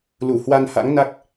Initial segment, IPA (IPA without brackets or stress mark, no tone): l